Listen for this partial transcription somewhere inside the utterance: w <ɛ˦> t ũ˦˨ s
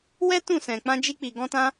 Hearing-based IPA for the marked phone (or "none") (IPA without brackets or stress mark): ɛ˦